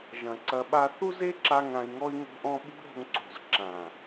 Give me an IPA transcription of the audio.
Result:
ʒ ɐ̃˨ ǀ ɐ˧ ɓ a˦ θ u˦ z e˦ ǁ a˧ ŋ ã˧ i̯ ŋ ɔ˦ i̯ ŋ o̤˦ ʔ ɔ̃˦ ɓ ṳ˦ ɾ o̤˧ ŋ ǀ o̤˨ z ǁ ã˨

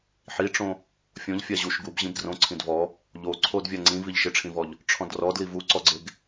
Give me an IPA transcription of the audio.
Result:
ħ i ʈ͡ʂ õ | fʲ õ ʎ fʲ a ʑ u ʃ ɡ u b ʑ ĩ b d r õ ǀʰ ĩ d v ɔ | ʎ o ǀʰ o d vʲ a ŋ͡ǀ ĩ v i ʎ ʃ ɪ ʈ͡ʂʰ ĩ v ɔ ʎ | ʈ͡ʂʰ ɔ̃ d r ɔ d l i v u ǀ ɔ ɡ͡ǀ e ɡ

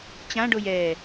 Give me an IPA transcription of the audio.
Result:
t͡ɕ ã ɖ o j ɛː

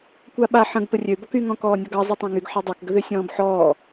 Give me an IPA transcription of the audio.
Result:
kʷ a ɓ a ħ ə̃ ɡ p ə rʲ ø b ɔ k y ŋ ɔ̃ k ɔː nʲ ɔ ɡ ɑ zˤ y tˤ ɑ̃ ŋ y ɡ ħ ɑ dˤ ə˞ k ɡ ə ð ø sʲ ɔ̃ː b ħ ɔː

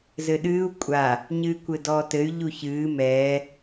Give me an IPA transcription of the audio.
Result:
z ɘ ɗ ɨː u̯ kʷʼ a | ɲ ɨː kʷ ɘ d ɔː t ɘ y̯ ʎ u ç ɨː m ɛː

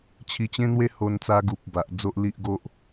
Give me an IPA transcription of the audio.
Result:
t͡ɕʰ i˧ t͡ɕ ẽ˦ n̪ w e˦ h o˧ n t͡s a˧ ɡ u˨ p̚ b a˨ ʔ d͡z o˦ ʔ l i˦ ʔ ɡ o˦ ʔ

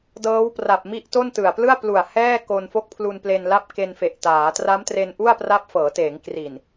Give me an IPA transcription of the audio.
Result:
d ɤː˦˥ w p r a˨˩ p̚ m i˦˥ ʔ t o˥˩ n t ɯ˨˩ a̯ p l ɯ˥˩ a̯ p l u˨˩ a̯ h ɛː˥˩ k o˧ n f o˥˩ k̚ pʰ l u˧ n p l e˧ n l a˥˩ p̚ k e˧ n f e˨˩ ʔ t aː˩˦ t r a˦˥ m t r e˧ n ʔ u˥˩ a̯ p r a˦˥ p̚ f ɤː˩˦ t eː˩˦ ŋ k r i˨˩ n

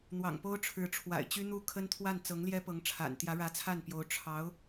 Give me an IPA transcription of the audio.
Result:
n̪ w ɑ̰˨˩ ŋ p o˥ ʊ̯ ʈ͡ʂʰ ɻ̩˧˥ ʈ͡ʂʰ w a̰˨˩ ɪ̯ t͡ɕ y˥ n̪ u˥˩ kʰ ə˥ n t̪ʰ w a˥˩ n t͡s ɤ˧˥ ŋ l j ɛ˥ p ɤ˧˥ ŋ ʈ͡ʂʰ a̰˨˩ n t̪ j ä˧˥ ɻ ä˧˥ t͡sʰ a˥˩ n p j o˧˥ ʊ̯ ʈ͡ʂʰ ɑ˧˥ ʊ̯

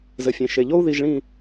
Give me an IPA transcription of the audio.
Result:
z ɘ˨ fʲ ẽ˨ ʃ e˨ ʎ o˦ u̯ ð i˨ ʒ ɭ ĩ˨

